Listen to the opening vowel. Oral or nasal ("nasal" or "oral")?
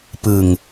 oral